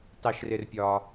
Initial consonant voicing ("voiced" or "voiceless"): voiceless